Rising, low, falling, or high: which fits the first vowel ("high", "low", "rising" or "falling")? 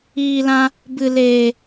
low